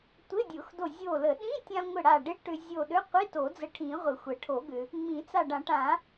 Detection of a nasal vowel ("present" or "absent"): present